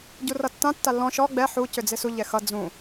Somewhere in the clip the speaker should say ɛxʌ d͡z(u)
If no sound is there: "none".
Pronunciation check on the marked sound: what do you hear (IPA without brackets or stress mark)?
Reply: ũ